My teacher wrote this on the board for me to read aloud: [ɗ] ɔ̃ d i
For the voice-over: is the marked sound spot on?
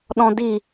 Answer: yes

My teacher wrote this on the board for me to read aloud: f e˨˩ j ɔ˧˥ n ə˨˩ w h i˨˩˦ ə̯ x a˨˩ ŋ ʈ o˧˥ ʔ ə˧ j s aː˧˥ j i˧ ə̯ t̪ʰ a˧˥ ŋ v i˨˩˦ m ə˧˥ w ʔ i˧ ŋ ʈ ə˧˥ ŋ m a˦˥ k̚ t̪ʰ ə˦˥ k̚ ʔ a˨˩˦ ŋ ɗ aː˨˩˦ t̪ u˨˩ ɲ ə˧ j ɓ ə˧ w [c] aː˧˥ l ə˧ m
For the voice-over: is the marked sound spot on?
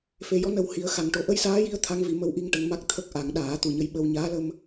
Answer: no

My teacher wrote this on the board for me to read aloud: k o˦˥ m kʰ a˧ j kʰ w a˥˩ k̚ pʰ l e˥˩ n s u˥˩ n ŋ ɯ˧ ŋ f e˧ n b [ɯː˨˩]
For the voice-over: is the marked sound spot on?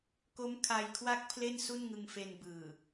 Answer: yes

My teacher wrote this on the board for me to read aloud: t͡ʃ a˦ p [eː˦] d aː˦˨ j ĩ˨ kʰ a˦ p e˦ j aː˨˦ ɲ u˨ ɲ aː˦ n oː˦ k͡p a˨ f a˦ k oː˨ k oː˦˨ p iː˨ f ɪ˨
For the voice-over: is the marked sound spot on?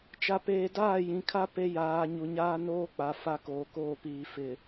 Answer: yes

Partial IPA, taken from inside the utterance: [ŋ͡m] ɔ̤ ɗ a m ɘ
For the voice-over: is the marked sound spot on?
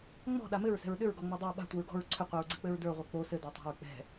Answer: yes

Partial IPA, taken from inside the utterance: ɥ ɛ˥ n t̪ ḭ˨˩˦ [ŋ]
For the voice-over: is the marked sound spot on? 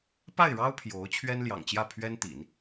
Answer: no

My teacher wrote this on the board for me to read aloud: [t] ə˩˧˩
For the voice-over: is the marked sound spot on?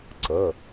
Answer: no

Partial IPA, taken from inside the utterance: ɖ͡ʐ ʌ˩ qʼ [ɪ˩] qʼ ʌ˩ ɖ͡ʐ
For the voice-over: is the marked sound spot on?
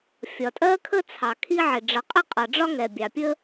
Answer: no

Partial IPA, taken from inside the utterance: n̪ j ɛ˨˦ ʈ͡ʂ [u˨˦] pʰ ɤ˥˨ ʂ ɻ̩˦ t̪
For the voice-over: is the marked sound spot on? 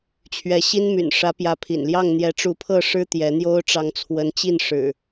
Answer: yes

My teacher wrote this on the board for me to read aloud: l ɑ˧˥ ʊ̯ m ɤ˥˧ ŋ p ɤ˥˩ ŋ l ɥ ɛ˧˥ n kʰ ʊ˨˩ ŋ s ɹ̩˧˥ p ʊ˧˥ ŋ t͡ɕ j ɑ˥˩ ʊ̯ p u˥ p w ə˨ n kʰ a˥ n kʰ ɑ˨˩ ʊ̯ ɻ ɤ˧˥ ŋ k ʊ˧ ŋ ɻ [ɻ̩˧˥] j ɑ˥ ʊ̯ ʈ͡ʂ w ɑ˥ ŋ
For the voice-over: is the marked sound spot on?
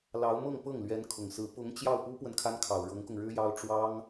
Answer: no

